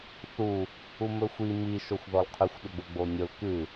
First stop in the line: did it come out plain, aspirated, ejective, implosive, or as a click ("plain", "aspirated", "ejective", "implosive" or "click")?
aspirated